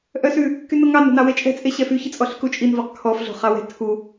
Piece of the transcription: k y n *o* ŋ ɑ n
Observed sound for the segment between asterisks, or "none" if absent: o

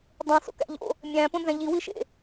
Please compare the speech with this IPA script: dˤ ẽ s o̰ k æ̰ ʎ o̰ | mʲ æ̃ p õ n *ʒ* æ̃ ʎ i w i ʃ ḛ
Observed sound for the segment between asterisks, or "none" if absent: z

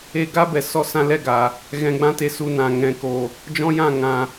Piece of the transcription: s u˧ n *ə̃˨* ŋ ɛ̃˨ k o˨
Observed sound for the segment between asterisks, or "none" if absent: ã˨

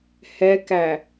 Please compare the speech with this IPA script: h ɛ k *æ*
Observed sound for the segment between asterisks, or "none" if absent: æ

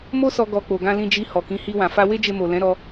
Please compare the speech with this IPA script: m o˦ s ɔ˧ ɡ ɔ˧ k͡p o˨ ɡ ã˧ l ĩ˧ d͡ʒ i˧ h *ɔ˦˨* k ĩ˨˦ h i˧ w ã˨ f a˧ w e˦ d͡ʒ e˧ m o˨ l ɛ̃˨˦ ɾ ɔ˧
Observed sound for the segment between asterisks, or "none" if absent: ɔ˨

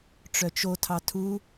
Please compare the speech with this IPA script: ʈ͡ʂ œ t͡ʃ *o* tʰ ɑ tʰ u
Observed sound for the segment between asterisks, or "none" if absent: o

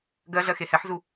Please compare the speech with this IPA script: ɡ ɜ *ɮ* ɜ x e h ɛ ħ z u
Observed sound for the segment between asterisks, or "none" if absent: ɮ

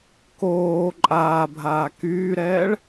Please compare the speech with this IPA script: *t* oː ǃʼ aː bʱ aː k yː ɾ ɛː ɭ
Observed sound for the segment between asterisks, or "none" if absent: k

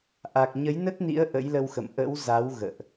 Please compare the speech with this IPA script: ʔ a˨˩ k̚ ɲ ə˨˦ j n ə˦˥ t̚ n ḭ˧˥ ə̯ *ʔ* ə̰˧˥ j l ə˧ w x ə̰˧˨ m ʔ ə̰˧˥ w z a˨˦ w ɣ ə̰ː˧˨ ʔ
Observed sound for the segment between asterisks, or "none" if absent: ʔ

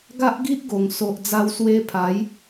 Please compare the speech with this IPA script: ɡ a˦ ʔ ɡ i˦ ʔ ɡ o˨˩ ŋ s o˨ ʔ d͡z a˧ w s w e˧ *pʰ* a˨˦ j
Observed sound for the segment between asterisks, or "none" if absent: pʰ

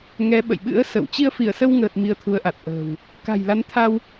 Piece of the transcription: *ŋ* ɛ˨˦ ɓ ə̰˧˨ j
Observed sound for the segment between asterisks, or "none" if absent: ŋ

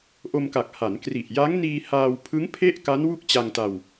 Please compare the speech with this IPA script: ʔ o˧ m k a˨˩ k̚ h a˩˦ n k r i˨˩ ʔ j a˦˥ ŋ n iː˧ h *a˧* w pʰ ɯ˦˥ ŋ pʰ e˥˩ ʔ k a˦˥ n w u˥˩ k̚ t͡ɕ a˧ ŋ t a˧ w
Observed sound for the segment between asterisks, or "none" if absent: aː˧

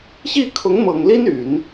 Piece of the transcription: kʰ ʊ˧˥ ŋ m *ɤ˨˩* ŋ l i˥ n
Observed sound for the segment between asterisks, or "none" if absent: ɤ˨˩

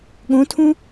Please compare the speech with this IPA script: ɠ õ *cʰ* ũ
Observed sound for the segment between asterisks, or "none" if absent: tʰ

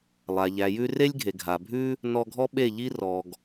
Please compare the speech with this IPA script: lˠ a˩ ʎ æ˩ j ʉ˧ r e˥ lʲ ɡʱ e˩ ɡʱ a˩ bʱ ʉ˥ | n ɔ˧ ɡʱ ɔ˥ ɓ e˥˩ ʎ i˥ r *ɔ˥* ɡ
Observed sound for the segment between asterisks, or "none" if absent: ɔ˩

